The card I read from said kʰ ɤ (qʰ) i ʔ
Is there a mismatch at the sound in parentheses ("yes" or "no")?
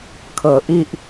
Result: yes